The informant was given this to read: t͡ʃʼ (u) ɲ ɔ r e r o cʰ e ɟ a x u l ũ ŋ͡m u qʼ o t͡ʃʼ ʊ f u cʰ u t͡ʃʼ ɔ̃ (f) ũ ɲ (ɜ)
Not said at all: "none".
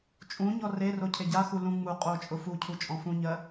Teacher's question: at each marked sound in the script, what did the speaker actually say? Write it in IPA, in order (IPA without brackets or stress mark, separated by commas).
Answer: ũ, f, ɜ